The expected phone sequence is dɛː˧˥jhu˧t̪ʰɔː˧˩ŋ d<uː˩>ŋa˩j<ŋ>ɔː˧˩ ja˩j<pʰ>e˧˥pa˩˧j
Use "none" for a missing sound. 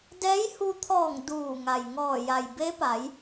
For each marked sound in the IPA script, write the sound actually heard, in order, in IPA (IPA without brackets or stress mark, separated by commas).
uː˧˩, ŋ, b